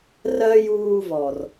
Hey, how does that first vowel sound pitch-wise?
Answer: high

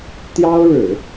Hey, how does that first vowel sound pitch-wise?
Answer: high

